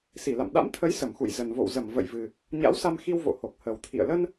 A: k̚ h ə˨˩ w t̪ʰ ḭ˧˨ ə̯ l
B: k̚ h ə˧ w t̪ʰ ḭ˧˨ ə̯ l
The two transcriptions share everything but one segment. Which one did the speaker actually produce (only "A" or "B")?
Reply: A